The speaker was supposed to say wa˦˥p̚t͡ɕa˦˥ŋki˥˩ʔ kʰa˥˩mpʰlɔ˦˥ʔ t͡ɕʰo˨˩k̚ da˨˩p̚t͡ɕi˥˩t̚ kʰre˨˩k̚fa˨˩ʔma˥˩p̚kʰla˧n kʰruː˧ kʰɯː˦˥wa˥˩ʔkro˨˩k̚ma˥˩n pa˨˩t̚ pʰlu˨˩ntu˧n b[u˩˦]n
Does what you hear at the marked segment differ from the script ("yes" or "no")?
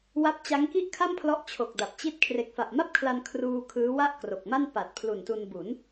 no